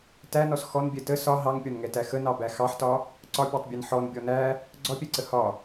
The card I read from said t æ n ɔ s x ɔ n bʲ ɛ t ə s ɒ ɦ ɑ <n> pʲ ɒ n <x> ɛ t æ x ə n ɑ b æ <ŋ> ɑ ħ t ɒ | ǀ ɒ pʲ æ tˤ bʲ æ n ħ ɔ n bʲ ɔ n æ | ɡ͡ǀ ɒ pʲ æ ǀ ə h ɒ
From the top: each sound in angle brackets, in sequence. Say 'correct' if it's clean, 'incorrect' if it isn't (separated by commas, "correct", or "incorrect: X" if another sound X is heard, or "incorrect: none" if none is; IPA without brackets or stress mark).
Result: incorrect: ŋ, incorrect: ŋ, incorrect: x